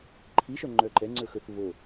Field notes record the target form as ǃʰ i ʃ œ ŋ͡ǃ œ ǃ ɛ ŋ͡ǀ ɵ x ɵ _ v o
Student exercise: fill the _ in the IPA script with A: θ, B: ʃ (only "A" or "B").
A